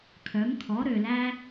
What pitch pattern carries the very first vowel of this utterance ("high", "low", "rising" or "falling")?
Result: rising